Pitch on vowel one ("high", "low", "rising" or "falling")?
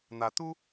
rising